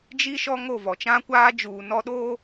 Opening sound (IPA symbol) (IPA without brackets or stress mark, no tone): d͡ʒ